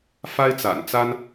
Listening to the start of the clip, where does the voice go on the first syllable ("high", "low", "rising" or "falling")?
high